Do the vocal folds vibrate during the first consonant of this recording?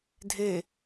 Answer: yes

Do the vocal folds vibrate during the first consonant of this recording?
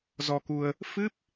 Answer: yes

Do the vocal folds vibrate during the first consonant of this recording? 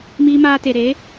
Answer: yes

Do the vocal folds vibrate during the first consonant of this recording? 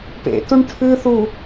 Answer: no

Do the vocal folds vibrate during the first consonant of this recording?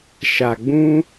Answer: no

